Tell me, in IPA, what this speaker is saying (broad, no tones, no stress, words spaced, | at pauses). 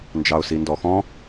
nd͡ʒɑʊ̯sindɔxɔ̃